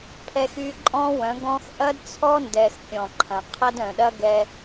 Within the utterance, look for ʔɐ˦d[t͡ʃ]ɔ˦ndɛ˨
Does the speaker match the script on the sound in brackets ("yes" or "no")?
no